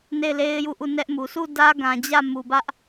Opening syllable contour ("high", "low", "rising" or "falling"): falling